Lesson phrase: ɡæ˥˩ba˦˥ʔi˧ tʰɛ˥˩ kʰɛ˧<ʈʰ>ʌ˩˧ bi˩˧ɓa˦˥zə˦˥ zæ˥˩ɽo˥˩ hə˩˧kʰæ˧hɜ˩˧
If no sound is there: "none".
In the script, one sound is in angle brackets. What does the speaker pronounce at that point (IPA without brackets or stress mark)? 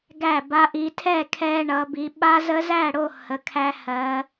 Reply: ɳ